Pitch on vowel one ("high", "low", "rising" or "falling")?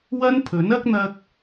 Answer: high